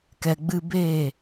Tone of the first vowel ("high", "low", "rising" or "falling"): low